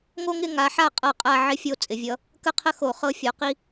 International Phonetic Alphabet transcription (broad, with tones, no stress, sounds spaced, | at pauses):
ŋ o˥ ŋ ɪ˥˧ ŋ a˨˦ ħ a˥˩ qʼ ɤ˥˩ qʼ a˥˧ ʕ ɪ˥ fʲ o˥˧ t͡sʼ ɪ˧˩˧ vʲ ʌ˨˦ | k ə˥˧ qʰ ə˥ x o˧˩˧ χ ɤ˥˧ fʲ ɔ˨˦ q i˥